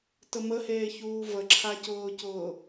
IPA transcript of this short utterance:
təməheːçuː vəǁʰacʊːcʊː

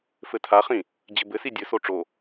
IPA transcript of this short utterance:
fɘtʰaχĩ | d͡ʑɘbɘsi dʲɘso ʈ͡ʂo

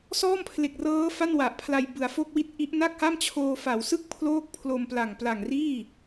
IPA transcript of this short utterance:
sɔː˥˩mpʰle˨˩k̚rɤː˦˥ fa˥˩nwa˨˩ʔpʰla˧j bɯ˩˦a̯fo˥˩k̚wi˥˩t̚ʔi˦˥ʔ na˥˩k̚ha˥˩mt͡ɕʰoː˧ fa˩˦wsɯ˥˩k̚ pʰloː˥˩k̚pʰlo˧mpla˨˩ŋ pla˨˩ŋ riː˥˩

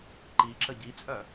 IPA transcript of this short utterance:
ǃiǁə ɟit͡sʼœ

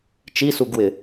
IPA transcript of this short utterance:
t͡ʃisuɡwɪ

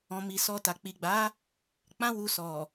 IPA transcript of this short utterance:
ɔ̃˨ mi˨sɔ˧ta˨ k͡pi˨ɡ͡ba˨˦ | k͡pã˦wu˧sɔ˨

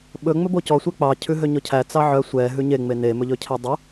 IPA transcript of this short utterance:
ɓɵ ŋ͡mɵbocɔ sʷɛk͡pɑ cʰʉɦøɲɔcʰæ t͡sɑʕœ sʷɛ ɦʉɲe ŋ͡mene mɵʎɵcʰædˤu

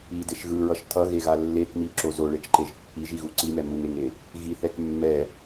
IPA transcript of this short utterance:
ideʃ ɣɯɹʌʃ tʰʌɣeɣa lːek miǁo zoɭet͡ʃǃeʒ pːiʒiɣu ǀimɛ muŋeŋe | ɣiθɛk mːɛ

